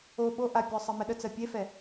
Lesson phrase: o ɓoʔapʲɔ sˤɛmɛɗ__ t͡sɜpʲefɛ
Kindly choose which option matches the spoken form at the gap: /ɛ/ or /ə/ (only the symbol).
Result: ə